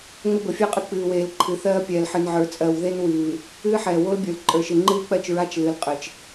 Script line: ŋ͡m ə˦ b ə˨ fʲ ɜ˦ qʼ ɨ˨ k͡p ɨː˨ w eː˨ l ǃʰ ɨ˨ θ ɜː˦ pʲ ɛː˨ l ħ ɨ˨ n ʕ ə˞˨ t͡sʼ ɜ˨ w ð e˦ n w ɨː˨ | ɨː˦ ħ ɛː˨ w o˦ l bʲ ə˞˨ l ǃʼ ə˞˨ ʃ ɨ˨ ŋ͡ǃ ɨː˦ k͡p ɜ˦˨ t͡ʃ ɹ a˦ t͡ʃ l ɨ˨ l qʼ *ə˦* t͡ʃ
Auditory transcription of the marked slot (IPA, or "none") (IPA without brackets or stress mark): ə˨